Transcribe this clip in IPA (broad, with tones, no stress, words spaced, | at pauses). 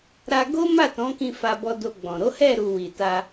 ɾa˧ ɡo˦ ma˦˨tɔ̃˨˦kĩ˧ fa˧bɔ˧do˧ɡ͡bɔ̃˨ ɾo˨˦hɛ˦˨ɾu˨ wi˨ta˧